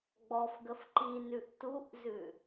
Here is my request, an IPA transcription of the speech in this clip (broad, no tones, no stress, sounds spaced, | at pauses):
ɡ͡b ɔ f ɡ ə f ǃ i n ʉ ʔ t u ʔ z ʉ